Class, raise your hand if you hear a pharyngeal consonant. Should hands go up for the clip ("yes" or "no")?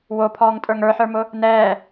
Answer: yes